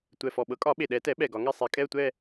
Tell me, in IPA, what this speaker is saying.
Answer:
tʷ ɛ˨˩ f ɔ˨˩ ɓ ɤ˩˥ kʼ ɒ˨˩˦ ɓ e˨˩ ɗ ɛ˨˩˦ t ɛ˩˥ ɓ ɛ˨˩ ɡ ɒ˨˩˦ ŋ ɛ˦˨ sˤ e˨˩˦ kʼ ɛ˦˨ ə̯ tʷ ɛ˦˨

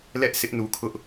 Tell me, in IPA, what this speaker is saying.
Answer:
l ɛ˦ ʔ s ɪ˦ ʔ n u˨ kʰ ʊ˦ ʔ

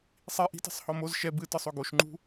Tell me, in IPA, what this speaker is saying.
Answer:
sˤ i ʔ i̤ t i̤ sˤ h ɔ m o z ʃ ɛ b ɨ t ɯ sˤ o ɡ o ʃ ŋ͡ǃ ṳ

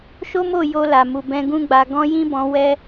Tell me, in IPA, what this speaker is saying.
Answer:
ʃ o˦ m o˦˨ j o˧ l a˨ m u˨ b ɛ̃˧ ɡ ũ˦ ɡ͡b a˧ ɡ ɔ̃˧ j ĩ˦ b ɔ̃˧ w ɛ˦

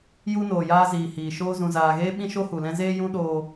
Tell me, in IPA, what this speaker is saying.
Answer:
j u˧ n oː˨ j aː˧ z iː˨ h iː˨ ʃ oː˧ z ũ˨ z aː˨ ɣ eː˧ ɓ ĩ˧ ʃ o˧ h u˨ l ɛ̃˧ z eː˧ j ũ˧ ɗ oː˧

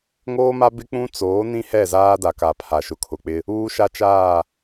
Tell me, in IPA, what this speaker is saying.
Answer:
ŋ oː˦ m a˦ b ɪ˦ k͡p ũ˦ t͡s oː˨˦ n ĩ˦ h ɛ˦˨ z aː˦ d a˨ k a˨ pʰ a˨ ʃ ʊ˨ kʰ ʊ˨ k͡p ɪ˦ | uː˦ ʃ a˦ t͡ʃ aː˦˨

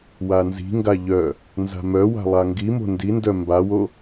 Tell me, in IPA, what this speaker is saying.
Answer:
w a n z i̤ ŋ ɡ a ʎ œ | n z a̤ m œ w a̤ lˠ a ŋ ɡ i m o̤ n d i n d œ m b a w o

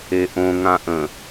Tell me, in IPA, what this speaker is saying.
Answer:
e ʔ õ ŋ ã ʔ ə̃

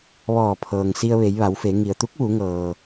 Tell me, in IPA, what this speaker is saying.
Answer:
ʋ ɔː˧˩ pʰ ɤː˩ ŋ s i˧ ə̯ ʋ e˩˧ j ʋ a˩˧ w f e˩˧ ŋ i˩ ə̯ t̪ u˧˥ k̚ ʋ u˩˧ ŋ ɤː˩

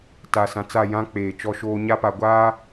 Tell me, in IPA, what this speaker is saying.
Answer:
t a˨ s ã˨ t͡s a˦˨ j ã˦ k͡p eː˨ t͡ʃ ɔ˦ ʃ oː˦ ɲ a˦ p a˨ ɡʷ aː˦

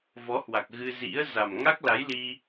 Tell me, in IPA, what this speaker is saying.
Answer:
v ɔ˨˦ h w a˨˩ k̚ ɣ ɨ˧ z ḭ˧˥ ə̯ z a˨˩ m ŋ a˦˥ k̚ l a˨˦ j l i˧

